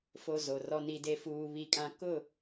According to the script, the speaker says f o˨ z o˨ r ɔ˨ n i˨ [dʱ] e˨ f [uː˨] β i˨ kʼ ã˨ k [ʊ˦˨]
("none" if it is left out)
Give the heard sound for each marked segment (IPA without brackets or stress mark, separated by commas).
d, uː˨, ʊ˦˨